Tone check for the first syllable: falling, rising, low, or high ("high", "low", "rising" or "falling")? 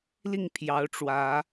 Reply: falling